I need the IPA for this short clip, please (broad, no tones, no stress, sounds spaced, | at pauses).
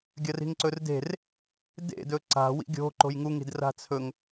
ɡʲ ɐ r i̤ ŋ ǀ ɵ r d e̤ r | d ḛ d ɵ ǀ a̤ w ḭ ɡʲ o̤ ǃ o̤ j ŋ u ŋ i̤ d r a̤ t͡sʰ ɵ ŋ